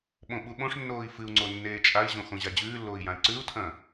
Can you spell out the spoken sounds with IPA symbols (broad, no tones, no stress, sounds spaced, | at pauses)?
ɓ õ ɓ u ɓ õ ʂ nː oː i̯ f ɨ u̯ ŋ͡ǀ o nː eː t͡ʃʼ a i̯ ʑ õ x õ ʑ a d͡ʑ ʉː lː oː i̯ j ã i̯ ǀ ʉ u̯ tʰ ɐ̃